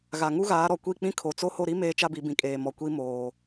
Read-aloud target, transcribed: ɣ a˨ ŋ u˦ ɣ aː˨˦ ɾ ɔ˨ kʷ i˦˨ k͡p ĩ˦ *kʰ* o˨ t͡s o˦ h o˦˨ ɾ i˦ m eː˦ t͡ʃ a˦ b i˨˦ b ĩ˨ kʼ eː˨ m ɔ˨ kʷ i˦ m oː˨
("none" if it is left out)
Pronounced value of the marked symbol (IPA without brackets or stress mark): kʰ